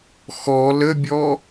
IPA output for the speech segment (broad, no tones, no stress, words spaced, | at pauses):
xɔ ləbʲɔ